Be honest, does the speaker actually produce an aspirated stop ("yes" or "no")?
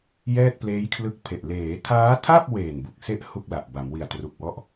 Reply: yes